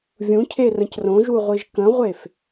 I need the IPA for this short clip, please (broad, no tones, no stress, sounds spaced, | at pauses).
vʲ ũ cʰ e r ə̃ c r õ ʒ u ʁʷ i ʒ k ə̃ ʁʷ e f